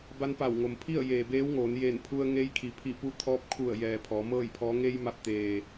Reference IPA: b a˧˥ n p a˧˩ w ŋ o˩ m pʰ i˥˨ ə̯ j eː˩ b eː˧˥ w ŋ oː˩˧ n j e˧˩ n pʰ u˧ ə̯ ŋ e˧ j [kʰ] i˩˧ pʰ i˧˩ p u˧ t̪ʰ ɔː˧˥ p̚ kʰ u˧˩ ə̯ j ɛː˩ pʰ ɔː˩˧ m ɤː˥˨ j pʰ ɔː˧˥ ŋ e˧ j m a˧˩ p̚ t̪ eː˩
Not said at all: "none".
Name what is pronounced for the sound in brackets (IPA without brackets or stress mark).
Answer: kʰ